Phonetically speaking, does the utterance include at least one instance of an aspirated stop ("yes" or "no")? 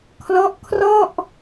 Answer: yes